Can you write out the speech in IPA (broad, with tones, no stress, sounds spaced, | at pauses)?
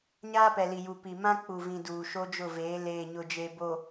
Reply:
ɲ aː˦ p ɛ˨ l i˨ j u˨ p i˨ m ã˦ k͡p u˨ v ĩ˨ d uː˨ ʃ o˦ d͡ʒ ʊ˦˨ v eː˨˦ l eː˨ ɲ ʊ˨ d͡ʒ e˨ b o˨